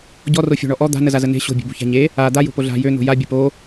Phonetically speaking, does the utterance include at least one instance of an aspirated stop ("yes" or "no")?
no